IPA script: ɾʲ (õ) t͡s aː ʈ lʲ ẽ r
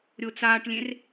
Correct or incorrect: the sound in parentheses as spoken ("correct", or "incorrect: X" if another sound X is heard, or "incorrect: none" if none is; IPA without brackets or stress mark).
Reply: incorrect: o